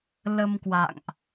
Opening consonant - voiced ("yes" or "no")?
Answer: yes